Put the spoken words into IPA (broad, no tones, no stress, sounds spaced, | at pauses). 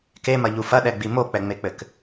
k e m ɐ ʎ u f ɐ ɗ ɛ ɡ͡b i m o k͡p ɛ ŋ͡m e k͡p ɘ k